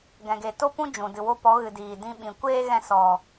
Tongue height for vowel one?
mid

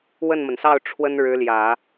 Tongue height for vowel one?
mid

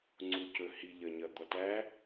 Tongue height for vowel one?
high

